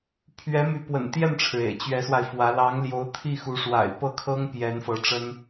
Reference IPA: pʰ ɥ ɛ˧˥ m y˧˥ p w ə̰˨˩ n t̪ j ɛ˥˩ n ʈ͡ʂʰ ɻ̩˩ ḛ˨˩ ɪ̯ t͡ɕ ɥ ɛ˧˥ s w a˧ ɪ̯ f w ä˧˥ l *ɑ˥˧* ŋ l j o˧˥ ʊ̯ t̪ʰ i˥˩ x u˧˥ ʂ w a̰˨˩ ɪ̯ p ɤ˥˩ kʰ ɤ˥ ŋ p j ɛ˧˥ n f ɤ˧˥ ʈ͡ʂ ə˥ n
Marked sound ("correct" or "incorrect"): incorrect